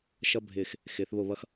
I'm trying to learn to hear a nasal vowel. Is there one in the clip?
no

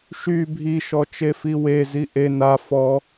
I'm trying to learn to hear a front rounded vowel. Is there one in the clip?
yes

